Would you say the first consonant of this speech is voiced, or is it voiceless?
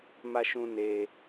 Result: voiced